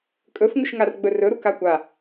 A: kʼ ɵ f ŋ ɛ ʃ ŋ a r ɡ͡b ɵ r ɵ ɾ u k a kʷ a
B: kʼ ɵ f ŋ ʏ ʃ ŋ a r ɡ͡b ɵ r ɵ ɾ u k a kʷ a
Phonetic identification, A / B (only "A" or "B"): B